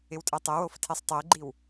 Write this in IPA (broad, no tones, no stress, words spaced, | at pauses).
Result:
ɪwtʼɛtˤɛwof tʰesˤtˤeɡ͡ǃiw